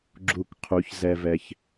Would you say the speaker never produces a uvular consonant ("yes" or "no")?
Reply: no